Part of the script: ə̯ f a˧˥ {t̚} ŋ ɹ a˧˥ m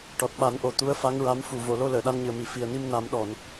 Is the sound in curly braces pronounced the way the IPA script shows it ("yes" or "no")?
no